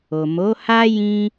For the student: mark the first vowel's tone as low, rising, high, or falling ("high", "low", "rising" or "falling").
low